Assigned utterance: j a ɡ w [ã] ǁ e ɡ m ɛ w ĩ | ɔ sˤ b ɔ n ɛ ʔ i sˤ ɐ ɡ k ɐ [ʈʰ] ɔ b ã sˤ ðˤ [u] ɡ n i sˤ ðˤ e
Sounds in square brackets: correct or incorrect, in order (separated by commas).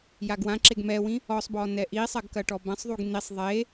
correct, incorrect, correct